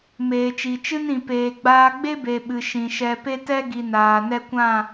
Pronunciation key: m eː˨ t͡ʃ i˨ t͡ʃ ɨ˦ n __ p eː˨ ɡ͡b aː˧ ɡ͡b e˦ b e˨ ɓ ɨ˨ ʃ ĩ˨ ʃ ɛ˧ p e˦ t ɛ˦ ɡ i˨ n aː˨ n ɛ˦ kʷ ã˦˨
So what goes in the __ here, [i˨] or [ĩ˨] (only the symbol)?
ĩ˨